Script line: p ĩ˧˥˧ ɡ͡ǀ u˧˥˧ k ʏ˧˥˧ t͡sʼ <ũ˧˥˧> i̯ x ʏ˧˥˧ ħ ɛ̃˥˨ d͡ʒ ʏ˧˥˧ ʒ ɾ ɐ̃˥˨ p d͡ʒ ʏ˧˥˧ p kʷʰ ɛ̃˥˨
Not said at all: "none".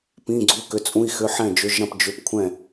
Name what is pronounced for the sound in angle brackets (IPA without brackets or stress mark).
ũ˧˥˧